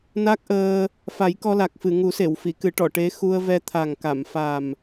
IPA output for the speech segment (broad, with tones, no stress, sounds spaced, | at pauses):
n a˦˥ k̚ ʔ əː˧ | f a˨˩˦ j k ɔ˧ l a˨˩ k̚ f ɨ˨˩˨ ŋ u˨˩˦ s e˨˩˨ w f i˨˩˨ k ɨ˨˩˦ ʈ ɔ˨˩˨ ʈ e˧˥ x u˧ ə̯ v ɛ˧ t̪ʰ a˨˩ ŋ k a˨˩˨ m f a˨˩ m